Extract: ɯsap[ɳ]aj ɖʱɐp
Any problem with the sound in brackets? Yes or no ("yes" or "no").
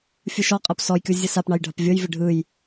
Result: no